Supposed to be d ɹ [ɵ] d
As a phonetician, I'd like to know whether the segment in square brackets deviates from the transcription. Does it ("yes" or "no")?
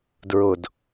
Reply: yes